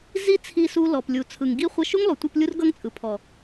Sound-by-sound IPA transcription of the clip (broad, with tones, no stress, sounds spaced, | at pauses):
z i˦ t͡sʰ i˧ s u˦ l ɔ˨ p lʲ u˨ t͡sʰ ɯ˨ ŋ ɡ i˦ χʷ ʌ˧ ʃ u˦ ŋ lˠ u˨ tʷ ɯ˧ p lʲ u˦ r ɡ ʌ˦ ŋ t͡sʼ ɯ˨ pʰ ɔ˨